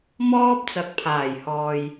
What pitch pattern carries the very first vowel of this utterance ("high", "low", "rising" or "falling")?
high